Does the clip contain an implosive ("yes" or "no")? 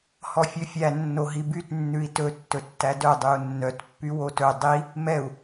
no